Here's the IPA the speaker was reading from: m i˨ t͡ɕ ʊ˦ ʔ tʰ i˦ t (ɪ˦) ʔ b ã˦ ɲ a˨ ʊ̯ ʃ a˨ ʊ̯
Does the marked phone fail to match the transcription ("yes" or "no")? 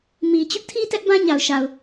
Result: yes